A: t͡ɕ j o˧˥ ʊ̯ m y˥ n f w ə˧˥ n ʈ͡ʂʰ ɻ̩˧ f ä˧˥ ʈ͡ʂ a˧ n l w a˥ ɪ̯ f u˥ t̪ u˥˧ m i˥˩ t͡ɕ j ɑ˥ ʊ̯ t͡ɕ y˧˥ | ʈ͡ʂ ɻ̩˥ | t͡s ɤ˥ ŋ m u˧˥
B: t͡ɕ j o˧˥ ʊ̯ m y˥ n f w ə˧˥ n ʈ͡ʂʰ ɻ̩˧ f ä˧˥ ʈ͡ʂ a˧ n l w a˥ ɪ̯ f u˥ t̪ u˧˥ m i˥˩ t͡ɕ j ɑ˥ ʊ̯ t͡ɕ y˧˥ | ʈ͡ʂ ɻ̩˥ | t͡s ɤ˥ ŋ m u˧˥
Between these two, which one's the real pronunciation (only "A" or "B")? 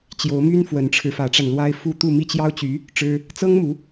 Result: A